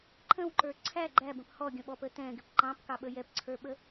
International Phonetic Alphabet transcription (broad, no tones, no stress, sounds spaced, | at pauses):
ǃʰ ə̃ w ǃ ə˞ ǀʰ æ ɡ͡ǃ æ b ə̃ p h ɔ ɡʲ ə̃ ɓ ɔ p ə t ɛ̃ ɡ ɪ p ǃ ɑ̃ p k ɑ ɓ ə j ɛ p ǀʰ ə˞ ɓ ə